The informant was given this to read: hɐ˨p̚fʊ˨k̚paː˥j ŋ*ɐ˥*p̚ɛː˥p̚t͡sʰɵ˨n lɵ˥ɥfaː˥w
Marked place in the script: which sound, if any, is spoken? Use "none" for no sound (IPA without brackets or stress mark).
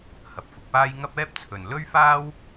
ɐ˥